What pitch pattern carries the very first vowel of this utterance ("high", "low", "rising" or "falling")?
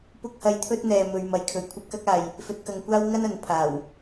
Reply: high